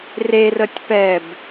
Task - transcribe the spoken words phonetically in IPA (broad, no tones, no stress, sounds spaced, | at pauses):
r e r ə tʲ p ɛ b